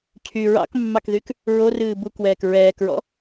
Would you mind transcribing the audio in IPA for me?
cʰ y ɹ ɑ̰ k mː ɑ k ð y k | ɹ o r ɨː b u k w ɛː k ɹ ɛː k ɹ ɔ̰

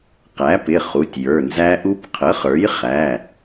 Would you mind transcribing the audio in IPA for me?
q æ˩˥ p ɪ˩˧˩ χ u˩˧˩ tʲ j ə˞˩˧˩ n z æ˦˥ ʔ u˦˥ p qʰ ə˩˥ χ ə˞˩˥ j χ æ˩˧˩

